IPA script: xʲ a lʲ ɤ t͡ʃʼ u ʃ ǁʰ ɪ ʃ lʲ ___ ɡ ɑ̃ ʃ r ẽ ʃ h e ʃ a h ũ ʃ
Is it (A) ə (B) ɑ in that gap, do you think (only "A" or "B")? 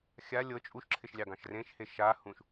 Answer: B